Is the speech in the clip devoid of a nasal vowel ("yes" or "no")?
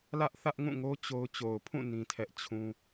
no